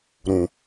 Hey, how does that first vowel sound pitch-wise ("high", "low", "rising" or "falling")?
low